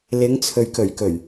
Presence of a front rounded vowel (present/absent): absent